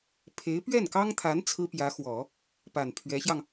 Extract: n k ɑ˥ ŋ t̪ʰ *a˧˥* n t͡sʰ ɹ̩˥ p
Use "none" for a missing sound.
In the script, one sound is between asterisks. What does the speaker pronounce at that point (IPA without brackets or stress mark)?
a˧˥